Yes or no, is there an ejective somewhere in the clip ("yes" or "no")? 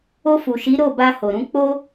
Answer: no